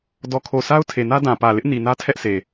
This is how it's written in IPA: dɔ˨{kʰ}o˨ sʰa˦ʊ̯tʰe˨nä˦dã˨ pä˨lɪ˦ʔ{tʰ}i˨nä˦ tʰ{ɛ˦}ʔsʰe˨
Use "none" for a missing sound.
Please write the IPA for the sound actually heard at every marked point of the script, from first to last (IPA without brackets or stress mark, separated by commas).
kʰ, n, ɛ˦